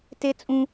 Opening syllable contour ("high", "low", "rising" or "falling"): high